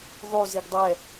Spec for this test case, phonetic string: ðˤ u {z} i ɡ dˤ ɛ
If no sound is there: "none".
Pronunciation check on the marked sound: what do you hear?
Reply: z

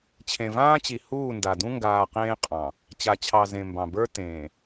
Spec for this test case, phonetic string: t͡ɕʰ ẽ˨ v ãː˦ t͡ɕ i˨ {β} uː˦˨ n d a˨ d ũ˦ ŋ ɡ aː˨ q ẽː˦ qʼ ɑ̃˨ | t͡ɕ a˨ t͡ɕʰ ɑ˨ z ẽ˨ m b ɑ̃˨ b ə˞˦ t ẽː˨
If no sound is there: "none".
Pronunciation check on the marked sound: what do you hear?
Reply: h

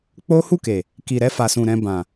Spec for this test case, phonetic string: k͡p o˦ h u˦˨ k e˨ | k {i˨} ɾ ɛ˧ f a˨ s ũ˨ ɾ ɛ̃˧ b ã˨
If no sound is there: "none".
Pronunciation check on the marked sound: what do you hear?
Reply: i˨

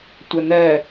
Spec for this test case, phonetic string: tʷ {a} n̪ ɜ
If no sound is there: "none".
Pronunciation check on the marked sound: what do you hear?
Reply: ɐ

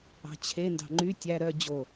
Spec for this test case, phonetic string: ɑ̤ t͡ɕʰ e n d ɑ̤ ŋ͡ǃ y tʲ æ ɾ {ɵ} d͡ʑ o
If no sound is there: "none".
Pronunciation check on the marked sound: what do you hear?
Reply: œ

